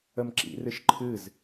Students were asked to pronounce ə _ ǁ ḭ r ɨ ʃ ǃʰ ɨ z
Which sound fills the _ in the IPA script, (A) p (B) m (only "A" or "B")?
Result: B